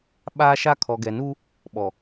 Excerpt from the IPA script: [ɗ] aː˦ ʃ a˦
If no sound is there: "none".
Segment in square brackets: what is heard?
ɓ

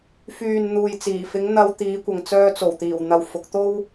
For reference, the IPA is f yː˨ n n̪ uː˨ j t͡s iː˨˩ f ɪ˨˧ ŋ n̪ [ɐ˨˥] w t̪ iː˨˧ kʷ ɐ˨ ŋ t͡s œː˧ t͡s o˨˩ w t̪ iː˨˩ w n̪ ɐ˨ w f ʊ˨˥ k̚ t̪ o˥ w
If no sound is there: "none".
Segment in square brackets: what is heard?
ɐ˧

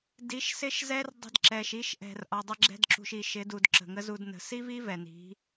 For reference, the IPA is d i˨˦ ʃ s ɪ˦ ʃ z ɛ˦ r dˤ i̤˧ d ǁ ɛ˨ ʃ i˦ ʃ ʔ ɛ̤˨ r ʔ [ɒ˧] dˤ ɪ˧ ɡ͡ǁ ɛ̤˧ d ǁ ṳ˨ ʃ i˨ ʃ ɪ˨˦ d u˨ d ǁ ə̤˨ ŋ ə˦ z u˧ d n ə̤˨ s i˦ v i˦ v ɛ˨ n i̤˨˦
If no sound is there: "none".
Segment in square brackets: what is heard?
ɒ˨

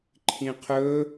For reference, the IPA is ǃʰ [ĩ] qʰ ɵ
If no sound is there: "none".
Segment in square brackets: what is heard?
ĩ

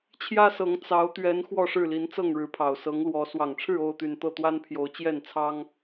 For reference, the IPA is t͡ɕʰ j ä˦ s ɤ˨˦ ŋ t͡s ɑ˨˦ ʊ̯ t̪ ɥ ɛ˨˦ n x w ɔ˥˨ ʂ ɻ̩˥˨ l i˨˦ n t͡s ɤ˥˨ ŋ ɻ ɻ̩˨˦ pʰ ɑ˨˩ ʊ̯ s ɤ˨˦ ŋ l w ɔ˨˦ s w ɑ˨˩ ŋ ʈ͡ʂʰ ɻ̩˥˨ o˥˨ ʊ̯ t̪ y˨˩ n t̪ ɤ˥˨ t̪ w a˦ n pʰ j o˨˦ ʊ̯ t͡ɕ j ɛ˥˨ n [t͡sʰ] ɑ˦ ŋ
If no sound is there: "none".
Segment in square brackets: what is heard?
t͡sʰ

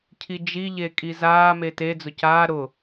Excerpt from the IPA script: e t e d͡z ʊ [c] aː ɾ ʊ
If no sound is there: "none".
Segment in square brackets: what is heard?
c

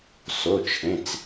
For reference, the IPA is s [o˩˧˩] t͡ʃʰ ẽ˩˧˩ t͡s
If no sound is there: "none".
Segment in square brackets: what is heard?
o˩˧˩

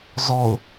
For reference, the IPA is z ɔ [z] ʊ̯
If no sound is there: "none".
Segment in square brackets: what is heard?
none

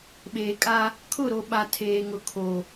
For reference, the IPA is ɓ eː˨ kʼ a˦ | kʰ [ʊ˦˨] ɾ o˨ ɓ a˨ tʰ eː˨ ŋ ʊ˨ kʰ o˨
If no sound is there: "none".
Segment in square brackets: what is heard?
ʊ˦˨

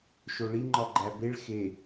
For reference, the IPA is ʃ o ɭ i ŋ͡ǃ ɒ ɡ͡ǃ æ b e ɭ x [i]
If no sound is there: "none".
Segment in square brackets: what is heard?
e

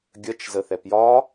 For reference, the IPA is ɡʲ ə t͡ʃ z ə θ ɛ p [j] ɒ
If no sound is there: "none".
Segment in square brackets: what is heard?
j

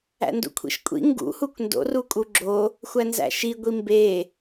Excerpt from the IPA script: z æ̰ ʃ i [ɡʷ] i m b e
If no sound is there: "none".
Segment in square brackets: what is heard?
ɡʷ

